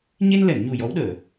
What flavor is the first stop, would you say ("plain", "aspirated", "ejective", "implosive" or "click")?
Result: implosive